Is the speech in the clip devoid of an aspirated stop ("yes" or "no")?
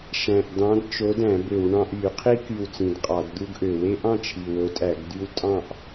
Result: no